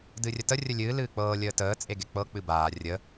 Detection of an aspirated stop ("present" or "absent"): absent